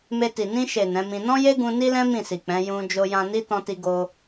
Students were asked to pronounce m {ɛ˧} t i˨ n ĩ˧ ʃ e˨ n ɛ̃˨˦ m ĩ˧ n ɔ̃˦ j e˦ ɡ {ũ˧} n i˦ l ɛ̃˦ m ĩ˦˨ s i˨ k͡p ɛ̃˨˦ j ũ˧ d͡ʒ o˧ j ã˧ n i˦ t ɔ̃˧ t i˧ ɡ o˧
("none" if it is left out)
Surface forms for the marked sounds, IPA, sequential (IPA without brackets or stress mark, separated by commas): e˧, ũ˧